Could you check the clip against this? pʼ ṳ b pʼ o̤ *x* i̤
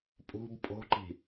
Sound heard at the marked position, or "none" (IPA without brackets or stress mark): ǃ